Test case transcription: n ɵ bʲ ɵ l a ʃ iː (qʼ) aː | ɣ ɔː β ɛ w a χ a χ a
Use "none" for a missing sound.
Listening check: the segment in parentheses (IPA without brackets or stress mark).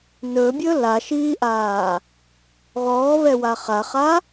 ʔ